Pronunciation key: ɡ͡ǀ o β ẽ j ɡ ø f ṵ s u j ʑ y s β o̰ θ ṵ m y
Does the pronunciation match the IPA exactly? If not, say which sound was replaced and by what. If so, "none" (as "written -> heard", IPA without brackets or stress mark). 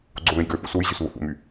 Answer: none